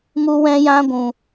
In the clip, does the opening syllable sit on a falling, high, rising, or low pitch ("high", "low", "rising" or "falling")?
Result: high